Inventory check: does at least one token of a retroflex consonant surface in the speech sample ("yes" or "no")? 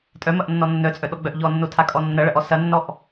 yes